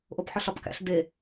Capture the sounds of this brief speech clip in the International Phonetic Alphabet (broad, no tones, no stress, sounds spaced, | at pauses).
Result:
ʔ o p ħ ɒ ɬ ɒ p k æ̰ ɬ d e